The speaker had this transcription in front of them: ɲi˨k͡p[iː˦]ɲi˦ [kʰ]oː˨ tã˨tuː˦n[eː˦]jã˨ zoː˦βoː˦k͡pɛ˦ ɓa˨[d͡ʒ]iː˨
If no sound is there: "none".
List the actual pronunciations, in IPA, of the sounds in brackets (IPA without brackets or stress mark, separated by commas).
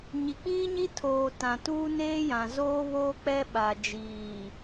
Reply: iː˦, tʰ, eː˦, d͡ʒ